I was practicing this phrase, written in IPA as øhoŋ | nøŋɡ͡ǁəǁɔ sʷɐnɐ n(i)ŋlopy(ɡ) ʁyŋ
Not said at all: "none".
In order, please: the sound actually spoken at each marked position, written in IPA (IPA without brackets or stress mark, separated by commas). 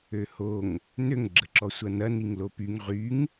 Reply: i, ŋ